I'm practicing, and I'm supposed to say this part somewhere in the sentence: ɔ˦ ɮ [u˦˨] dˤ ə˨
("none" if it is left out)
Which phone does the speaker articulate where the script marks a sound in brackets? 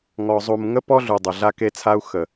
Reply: u˨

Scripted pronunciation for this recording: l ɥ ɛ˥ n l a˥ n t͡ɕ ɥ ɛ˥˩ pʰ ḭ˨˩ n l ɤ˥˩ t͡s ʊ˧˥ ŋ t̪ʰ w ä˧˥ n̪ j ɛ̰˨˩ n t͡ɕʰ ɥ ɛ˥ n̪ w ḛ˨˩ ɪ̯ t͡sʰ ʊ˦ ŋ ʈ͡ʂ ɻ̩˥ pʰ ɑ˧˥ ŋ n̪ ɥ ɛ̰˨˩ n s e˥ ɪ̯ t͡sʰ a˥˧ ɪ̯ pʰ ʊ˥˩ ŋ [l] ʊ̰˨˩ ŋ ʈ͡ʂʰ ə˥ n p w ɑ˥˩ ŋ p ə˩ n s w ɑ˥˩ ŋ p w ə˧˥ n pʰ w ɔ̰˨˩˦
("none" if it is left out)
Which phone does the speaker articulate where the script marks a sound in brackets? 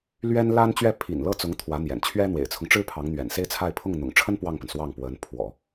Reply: n̪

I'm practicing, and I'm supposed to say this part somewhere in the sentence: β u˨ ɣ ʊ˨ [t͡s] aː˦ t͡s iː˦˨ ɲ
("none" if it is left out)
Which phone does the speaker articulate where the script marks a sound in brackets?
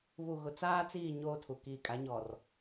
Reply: t͡s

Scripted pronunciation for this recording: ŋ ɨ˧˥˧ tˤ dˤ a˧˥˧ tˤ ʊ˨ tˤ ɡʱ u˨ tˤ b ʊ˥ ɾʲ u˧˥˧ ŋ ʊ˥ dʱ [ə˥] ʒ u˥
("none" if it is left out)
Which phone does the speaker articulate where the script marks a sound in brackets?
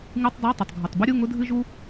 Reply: ɨ˥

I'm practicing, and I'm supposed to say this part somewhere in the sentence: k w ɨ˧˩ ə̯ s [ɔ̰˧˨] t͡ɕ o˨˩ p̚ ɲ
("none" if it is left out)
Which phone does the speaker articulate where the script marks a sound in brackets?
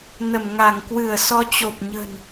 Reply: ɔ˧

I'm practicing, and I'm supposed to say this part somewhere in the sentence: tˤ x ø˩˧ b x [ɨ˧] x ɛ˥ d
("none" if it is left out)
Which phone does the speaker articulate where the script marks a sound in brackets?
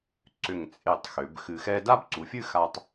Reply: ɨ˧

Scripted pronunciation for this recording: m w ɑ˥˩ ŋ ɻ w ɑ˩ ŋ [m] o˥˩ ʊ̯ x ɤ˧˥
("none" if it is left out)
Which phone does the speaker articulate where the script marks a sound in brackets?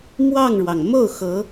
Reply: m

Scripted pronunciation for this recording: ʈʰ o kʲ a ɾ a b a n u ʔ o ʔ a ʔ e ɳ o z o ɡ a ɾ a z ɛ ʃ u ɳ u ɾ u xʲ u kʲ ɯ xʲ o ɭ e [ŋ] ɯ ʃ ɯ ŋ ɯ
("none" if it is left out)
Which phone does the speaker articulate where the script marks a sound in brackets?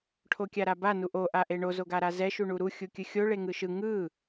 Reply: ŋ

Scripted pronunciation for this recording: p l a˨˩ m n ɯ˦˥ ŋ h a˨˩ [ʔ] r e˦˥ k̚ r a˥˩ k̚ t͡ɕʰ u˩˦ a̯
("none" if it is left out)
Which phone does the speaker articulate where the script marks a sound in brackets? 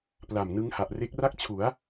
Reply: ʔ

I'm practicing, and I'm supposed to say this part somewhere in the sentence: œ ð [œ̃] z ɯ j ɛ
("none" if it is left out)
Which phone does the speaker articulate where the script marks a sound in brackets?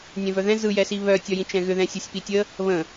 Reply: ɛ̃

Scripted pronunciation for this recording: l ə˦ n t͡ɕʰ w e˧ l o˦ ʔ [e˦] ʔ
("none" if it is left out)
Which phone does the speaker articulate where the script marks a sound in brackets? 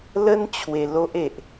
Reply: e˨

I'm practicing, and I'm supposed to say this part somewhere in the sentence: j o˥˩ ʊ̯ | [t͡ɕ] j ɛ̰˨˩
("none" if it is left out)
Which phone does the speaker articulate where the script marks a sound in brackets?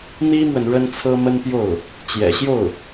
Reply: t͡ɕ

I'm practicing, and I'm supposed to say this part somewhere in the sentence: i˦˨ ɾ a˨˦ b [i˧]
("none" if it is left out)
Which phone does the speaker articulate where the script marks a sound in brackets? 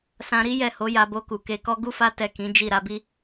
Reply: i˦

